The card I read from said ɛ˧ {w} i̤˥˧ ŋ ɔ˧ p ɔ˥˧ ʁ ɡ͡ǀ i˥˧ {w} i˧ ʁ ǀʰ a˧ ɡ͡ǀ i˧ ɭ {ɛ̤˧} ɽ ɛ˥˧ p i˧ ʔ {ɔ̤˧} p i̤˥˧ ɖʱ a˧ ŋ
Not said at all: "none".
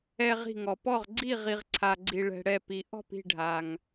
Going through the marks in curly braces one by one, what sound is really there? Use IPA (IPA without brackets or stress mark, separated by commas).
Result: ʁ, ʁ, ɛ̤˧, ɔ̤˥˧